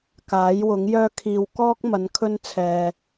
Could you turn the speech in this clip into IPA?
k aː˨˥ j w ʊ˨˥ ŋ j œː˥ kʰ iː˧ w k ɔː˥ k̚ m ɐ˨˧ n kʰ ɵ˥ n t͡sʰ ɛː˨

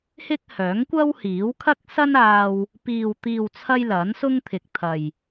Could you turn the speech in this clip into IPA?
h ɪ˥ k̚ h œː˨˥ ŋ kʷ ɐ˥ w h iː˨˥ w kʰ ɐ˥ k̚ s ɐ˥ n aː˧ w | p iː˨ w t̪ iː˨ w t͡sʰ ɐ˧ j l ɐ˨˥ n s ʊ˥ ŋ t̪ʰ ɪ˨ k̚ t̪ʰ ɐ˨ j

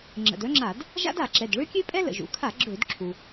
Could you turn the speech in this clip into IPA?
ŋ͡ǁ ə̰˩ d œ˥ ŋ͡ǁ a˧˩˧ d | ʒ a̰˥ d a˧˩˧ ǁ ɛ˩˧˩ d ɭ ø˥ kʲ ø˥ pʼ ɛ˥ l ə̰˩ ʒ ṵ˩˧ kʰ a˧˩˧ ɡ͡ǁ ø˧˩˧ d ǁʰ u˩

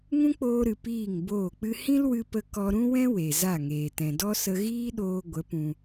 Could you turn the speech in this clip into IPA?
ŋ ũ˦ k͡p oː˧ ɾ ɨ˨ p iː˦˨ ŋ b oː˦˨ k͡p ɨ˦ h ĩ˦ l w ɨ˧ p ə˧ k ɔ˧ ɾ ũ˦ w ɛ̃˦ w e˨ z a˦˨ ŋ eː˨ t ɛ̃˨ d ɔ˦ s ə˧ ɣ iː˦ ɗ oː˧ ɡʷ ə˨˦ p ũ˧

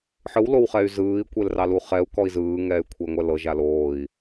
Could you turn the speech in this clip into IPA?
ħ ɯ w l o w χ ɛ y̯ z ɯː i̯ kʷ e l r ɑ l u χ ɛ u̯ k ɔ i̯ z ɯː ŋ ɛː y̯ kʷʰ e i̯ ŋʷ ɛ l ɤ ʒ a l oː i̯

